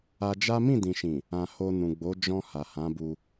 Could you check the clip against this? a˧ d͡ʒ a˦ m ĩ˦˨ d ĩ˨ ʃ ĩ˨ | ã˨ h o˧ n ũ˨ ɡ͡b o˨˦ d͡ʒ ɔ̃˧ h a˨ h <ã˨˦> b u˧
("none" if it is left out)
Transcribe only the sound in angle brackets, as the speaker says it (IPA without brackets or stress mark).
ã˨˦